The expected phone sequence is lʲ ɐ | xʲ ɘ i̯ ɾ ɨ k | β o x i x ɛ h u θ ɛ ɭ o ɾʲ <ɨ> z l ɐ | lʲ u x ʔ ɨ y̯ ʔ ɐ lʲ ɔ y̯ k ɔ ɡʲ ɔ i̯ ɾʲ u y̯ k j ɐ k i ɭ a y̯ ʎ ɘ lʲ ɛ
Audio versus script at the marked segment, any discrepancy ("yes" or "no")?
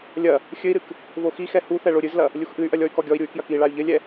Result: no